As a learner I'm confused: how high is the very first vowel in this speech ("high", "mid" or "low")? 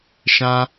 low